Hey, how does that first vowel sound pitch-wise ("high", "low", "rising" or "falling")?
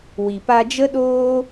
low